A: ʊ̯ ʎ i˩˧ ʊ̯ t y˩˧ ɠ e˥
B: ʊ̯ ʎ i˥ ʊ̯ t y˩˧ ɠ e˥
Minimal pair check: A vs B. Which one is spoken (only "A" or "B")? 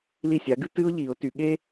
A